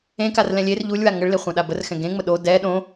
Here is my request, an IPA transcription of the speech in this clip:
ẽ karlɛ̃lʲer ʎulʲwa ŋəɭle χʷɛ̃ɗabərxɛ̃ ɡẽŋ͡mə ɗo dɛ ɗõ

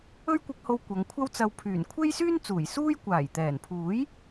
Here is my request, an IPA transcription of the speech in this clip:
ɵ˥ɥkʷɪ˧k̚ho˧w kʷɐ˨˧ŋkʷʰɐ˥wt͡sɐ˧w pʰyː˨˩nkʷʰe˥jsyː˥nt͡suː˨˩j suː˥j kʷaː˨˩jt̪ɛː˨˩npʰuː˨˥j

